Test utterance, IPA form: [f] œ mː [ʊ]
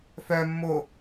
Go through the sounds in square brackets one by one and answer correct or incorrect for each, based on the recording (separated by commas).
correct, correct